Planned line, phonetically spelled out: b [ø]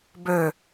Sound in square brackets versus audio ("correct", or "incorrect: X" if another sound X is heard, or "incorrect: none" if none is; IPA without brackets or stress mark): correct